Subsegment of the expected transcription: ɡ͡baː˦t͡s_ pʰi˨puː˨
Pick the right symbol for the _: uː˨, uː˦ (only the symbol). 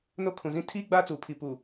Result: uː˨